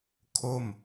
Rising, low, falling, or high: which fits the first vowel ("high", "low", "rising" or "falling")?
falling